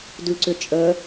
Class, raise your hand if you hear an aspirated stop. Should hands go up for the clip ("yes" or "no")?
no